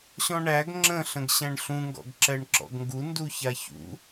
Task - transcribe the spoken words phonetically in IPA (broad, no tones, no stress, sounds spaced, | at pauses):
ɕ ɔ̃ ɳ æ ɡ ŋ͡ǁ ə̃ ɬ ə̃ ɡ ɕ æ̃ ɳ ɬ ũ ŋ ɡ ɔ̰ ɡ ǁ ɛ ɳ ǁ ɔ̰ ɡ ŋ ɡ u n d u ç a ç ṵ